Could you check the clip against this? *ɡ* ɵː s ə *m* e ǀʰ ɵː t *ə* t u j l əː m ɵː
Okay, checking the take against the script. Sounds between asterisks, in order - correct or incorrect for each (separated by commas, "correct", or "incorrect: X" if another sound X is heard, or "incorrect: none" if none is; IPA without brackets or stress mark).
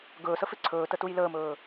correct, incorrect: f, correct